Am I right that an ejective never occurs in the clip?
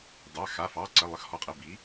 no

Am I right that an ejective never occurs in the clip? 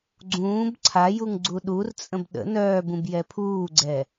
no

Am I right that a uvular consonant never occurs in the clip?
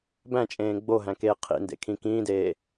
no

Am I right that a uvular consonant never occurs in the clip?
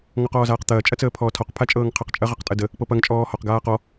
no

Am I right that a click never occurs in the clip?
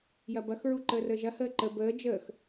no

